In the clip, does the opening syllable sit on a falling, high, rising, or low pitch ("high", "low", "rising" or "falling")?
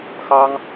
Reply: high